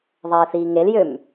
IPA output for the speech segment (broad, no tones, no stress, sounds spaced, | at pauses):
ðˤ ɛː θ iː ŋ e l j ø m